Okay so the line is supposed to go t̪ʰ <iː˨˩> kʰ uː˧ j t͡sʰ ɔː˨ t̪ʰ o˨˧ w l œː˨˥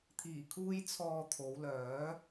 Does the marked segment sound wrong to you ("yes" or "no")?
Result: no